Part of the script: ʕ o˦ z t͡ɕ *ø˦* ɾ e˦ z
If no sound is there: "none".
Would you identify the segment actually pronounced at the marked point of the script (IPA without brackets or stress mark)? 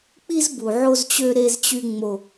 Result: ø˦